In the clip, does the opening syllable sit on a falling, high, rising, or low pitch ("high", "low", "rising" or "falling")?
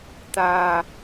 low